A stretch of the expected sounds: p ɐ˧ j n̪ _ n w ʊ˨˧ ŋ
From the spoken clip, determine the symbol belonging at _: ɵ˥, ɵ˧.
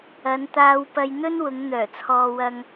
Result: ɵ˥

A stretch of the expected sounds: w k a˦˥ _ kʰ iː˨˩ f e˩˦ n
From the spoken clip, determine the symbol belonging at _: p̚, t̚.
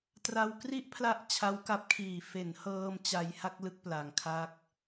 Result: p̚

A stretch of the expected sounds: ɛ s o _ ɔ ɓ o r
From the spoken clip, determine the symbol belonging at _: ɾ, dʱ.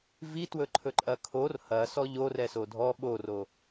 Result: dʱ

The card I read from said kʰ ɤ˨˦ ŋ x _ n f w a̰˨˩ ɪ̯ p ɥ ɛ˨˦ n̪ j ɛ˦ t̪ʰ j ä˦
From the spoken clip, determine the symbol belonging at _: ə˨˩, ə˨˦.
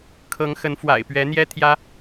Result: ə˨˦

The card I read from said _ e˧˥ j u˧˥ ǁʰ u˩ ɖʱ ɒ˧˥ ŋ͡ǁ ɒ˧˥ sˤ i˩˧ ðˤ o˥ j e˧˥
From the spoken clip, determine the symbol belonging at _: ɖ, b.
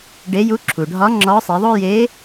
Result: ɖ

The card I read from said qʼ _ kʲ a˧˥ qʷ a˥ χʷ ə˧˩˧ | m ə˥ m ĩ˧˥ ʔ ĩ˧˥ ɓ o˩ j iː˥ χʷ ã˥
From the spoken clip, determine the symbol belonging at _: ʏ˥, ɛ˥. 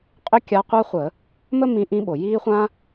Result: ʏ˥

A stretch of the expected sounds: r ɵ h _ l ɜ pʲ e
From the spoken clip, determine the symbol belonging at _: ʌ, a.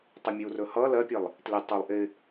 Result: ʌ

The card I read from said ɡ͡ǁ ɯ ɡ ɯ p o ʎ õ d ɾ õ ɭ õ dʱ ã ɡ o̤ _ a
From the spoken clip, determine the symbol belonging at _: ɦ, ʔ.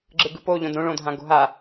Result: ɦ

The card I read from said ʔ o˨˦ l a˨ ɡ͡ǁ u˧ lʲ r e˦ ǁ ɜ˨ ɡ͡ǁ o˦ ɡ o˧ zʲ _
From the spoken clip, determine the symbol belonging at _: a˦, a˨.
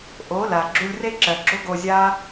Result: a˦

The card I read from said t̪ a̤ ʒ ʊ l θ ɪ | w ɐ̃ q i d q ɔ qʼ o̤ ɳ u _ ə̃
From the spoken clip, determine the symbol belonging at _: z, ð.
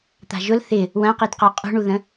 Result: ð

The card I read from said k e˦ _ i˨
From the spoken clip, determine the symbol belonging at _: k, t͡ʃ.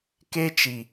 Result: t͡ʃ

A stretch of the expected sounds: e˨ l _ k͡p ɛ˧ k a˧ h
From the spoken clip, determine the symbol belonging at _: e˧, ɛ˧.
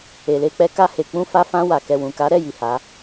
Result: e˧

